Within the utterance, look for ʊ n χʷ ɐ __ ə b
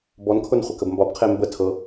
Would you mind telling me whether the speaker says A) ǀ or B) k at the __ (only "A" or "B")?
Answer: B